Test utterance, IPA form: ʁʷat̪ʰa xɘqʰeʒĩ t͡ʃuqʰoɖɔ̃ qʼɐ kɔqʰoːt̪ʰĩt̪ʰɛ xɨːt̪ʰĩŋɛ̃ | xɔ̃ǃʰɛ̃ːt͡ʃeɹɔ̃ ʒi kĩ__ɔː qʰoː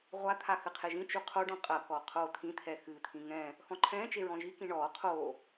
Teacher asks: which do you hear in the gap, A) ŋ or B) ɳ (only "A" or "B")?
B